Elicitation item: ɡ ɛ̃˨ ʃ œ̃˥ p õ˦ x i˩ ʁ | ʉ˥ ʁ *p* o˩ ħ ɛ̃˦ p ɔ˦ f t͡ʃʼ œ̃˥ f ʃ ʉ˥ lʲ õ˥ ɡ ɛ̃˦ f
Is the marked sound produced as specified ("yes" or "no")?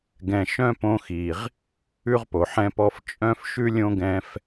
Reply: yes